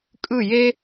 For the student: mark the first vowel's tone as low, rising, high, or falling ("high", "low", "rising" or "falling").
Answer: falling